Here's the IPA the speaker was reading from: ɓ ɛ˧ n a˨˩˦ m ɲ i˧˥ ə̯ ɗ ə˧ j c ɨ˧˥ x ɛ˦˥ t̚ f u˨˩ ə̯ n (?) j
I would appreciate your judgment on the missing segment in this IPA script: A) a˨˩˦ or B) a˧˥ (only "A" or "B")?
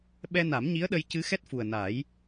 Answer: A